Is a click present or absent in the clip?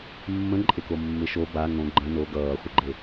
present